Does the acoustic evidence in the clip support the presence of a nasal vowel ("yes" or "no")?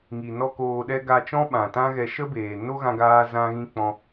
yes